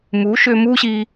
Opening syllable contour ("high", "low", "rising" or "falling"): rising